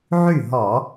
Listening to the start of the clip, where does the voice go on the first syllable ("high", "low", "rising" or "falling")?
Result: falling